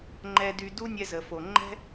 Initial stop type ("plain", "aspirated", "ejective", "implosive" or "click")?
click